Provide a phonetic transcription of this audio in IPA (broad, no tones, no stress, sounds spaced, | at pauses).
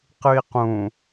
q ɨ i̯ q ũ